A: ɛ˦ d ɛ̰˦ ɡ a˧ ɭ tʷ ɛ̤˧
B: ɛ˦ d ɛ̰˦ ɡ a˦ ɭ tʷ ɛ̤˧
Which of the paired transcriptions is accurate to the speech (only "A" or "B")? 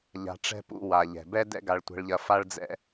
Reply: A